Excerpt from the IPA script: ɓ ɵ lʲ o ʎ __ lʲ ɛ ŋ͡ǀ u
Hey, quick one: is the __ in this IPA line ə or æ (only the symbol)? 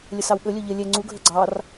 ə